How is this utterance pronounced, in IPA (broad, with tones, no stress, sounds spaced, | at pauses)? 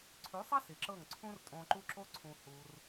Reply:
ǀʰ ʉ˨˦ sˤ a˦ s i˨ ǁ ɤ˦˨ ŋ ǀʰ ũ˦ r tʼ õ˧ ǃ u˦ ǁ o˦ ǀʰ ũ˧ h u˧ r